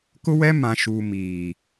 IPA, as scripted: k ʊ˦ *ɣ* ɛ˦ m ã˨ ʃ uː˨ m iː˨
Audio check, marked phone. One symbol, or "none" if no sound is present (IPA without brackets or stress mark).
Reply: w